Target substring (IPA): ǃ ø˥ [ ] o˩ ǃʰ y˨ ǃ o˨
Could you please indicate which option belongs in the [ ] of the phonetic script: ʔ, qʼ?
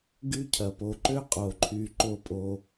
qʼ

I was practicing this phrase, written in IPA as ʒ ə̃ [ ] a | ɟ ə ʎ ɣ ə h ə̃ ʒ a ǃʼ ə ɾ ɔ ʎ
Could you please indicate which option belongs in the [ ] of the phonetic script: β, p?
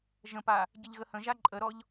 p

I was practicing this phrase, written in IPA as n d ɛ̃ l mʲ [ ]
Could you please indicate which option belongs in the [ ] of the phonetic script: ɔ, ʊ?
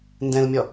ɔ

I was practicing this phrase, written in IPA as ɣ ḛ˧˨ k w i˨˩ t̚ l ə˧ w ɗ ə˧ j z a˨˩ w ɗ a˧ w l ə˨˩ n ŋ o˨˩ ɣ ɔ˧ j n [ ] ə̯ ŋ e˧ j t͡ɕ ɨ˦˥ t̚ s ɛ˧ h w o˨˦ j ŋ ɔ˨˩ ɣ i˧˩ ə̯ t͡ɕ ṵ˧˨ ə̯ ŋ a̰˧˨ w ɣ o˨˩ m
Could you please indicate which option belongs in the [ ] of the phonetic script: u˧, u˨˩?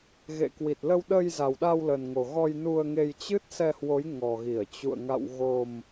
u˧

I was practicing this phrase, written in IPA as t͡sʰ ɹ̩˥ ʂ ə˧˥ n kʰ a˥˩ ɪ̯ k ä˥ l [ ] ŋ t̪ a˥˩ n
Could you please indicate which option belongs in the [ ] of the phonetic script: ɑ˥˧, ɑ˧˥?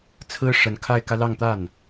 ɑ˥˧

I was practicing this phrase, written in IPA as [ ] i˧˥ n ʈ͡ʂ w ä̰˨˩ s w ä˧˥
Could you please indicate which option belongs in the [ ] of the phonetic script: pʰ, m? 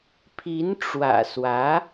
pʰ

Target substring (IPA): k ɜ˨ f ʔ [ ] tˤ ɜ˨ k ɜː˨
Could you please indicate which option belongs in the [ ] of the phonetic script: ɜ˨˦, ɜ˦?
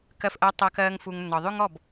ɜ˨˦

